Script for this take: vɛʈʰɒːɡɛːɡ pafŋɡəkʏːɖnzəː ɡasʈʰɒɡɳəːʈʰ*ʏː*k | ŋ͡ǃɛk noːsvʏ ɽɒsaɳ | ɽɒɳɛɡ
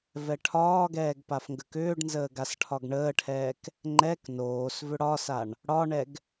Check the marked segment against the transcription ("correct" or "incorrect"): incorrect